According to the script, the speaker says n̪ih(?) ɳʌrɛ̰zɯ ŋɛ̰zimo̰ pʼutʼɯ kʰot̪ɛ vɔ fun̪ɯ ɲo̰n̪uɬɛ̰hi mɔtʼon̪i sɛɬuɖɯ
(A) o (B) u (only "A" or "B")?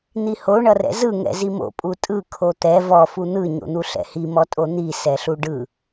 A